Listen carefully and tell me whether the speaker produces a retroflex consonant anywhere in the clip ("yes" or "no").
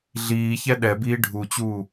yes